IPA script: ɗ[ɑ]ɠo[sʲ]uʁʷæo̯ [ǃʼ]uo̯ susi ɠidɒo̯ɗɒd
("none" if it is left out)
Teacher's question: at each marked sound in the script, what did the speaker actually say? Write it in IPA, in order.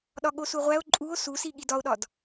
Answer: ɒ, s, ǃʼ

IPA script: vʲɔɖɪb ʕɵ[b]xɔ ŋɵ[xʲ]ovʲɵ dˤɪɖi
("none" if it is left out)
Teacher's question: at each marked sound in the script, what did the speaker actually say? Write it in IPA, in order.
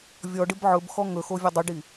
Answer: b, x

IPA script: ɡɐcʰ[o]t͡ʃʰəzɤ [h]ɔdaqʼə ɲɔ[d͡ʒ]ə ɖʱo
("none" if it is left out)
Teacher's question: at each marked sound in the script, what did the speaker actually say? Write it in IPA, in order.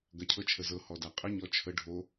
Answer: ɤ, h, t͡ʃʰ

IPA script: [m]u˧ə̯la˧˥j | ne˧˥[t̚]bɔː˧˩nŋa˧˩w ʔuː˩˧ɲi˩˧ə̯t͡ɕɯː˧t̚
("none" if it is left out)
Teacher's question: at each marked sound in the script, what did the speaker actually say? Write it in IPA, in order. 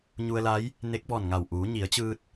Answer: ɲ, k̚

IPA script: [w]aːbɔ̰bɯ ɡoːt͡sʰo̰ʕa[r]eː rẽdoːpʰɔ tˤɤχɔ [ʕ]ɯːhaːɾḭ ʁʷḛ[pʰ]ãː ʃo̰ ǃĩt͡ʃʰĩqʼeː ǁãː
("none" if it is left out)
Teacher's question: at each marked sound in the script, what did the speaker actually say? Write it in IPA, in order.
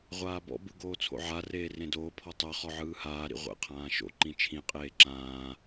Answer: ʁʷ, r, ʕ, qʰ

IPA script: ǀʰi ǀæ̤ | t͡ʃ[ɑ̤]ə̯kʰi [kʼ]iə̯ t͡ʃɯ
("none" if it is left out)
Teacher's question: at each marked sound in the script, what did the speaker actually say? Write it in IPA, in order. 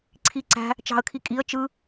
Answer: ɑ̤, kʼ

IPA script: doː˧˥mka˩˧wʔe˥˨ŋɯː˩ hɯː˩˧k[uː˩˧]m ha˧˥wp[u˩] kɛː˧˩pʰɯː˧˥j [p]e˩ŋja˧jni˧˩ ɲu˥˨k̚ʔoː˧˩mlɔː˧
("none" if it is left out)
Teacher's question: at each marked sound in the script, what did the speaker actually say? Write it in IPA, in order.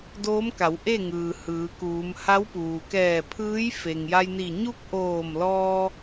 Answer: uː˩˧, uː˩, f

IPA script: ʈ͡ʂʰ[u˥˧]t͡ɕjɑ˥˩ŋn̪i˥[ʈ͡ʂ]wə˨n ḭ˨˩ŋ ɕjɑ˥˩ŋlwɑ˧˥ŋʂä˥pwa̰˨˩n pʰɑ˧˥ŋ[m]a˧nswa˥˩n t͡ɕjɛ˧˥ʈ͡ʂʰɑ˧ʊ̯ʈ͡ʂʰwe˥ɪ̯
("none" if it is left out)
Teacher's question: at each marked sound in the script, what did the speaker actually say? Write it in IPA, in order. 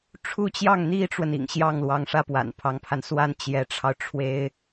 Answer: u˥˧, ʈ͡ʂ, pʰ

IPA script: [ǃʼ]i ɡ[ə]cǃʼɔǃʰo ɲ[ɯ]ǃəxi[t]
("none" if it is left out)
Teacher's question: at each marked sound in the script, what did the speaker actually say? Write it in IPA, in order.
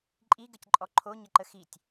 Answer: ǃʼ, ə, ə, tʲ

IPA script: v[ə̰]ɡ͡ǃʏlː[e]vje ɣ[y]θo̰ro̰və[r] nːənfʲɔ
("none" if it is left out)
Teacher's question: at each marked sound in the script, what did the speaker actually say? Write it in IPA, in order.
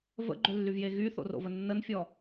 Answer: ə̰, y, y, none

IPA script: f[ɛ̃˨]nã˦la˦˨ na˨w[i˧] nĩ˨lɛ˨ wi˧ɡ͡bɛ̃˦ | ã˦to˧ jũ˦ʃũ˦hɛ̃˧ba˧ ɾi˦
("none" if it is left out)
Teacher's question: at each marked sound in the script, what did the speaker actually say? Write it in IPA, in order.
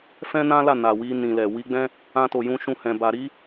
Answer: ɛ̃˦, i˧

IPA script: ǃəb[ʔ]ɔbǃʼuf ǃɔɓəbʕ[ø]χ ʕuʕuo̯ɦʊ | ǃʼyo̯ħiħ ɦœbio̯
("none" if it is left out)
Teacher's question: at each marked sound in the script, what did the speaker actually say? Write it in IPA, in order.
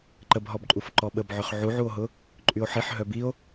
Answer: ɦ, ø

